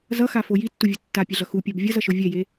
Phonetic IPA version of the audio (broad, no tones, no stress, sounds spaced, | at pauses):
z ʌ x a f o j i tː u vʲ o tː a pʲ ɛ ɮ ʌ x u pʲ a b vʲ ʌ z ʌ ʃ o vʲ ɛ j e